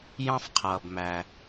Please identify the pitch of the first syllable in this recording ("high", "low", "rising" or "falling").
high